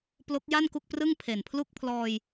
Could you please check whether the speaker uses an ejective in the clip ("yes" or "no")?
no